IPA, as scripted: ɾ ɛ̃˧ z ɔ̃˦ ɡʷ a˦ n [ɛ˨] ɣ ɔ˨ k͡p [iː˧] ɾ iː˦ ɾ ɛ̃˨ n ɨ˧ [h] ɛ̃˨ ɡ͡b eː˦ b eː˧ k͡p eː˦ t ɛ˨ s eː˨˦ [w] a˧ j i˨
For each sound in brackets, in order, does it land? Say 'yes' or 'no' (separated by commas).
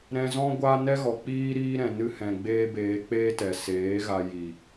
no, no, yes, no